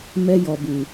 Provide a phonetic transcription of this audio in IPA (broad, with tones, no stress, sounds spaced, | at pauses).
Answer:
m ɛ˦ j ɔ˨ b u˨